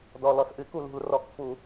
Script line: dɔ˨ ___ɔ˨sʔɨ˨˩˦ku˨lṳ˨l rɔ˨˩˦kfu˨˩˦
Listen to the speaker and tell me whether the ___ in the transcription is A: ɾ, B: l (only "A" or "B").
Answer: B